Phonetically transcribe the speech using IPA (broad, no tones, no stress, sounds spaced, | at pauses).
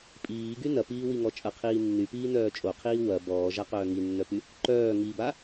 pʼ iː ɡ y n ɐ p iː w i ŋ ɔ t͡ʃʼ ɐ qʰ iː nː y p iː n œː t͡ʃʼ o qʰ iː w ɐ b ɔː ʒ a q œː ŋ i nː œ p y | ǃ œː ŋ i b a